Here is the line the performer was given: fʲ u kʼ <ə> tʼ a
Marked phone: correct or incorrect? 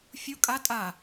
incorrect